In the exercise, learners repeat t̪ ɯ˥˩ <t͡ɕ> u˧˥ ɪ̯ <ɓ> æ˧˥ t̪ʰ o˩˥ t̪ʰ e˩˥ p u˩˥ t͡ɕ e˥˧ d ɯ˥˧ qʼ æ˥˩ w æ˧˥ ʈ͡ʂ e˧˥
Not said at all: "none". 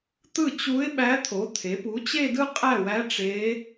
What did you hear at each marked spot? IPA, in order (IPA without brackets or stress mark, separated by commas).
t͡ɕ, ɓ